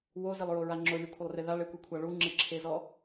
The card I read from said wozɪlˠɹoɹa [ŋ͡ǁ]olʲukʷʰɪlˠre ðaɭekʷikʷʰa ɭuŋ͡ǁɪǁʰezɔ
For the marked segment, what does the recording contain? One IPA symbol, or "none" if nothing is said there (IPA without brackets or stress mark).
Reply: ŋ͡ǁ